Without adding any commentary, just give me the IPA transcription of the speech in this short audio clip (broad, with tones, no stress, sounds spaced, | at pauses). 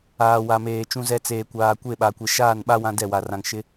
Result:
aː˨ w a˨ m eː˨ t͡ʃ ũ˦ z ɛ˦ t͡s eː˨ kʷ aː˨ kʷ e˦˨ ɓ a˨ kʷ e˨ ʃ aː˦˨ n ɓ a˦ w ã˦ d ɛ˦˨ w a˨ r ã˨ ŋ ʃ ɪ˦